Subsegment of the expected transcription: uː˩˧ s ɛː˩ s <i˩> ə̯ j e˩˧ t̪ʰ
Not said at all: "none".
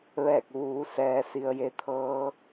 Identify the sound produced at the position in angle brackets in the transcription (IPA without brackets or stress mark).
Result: i˩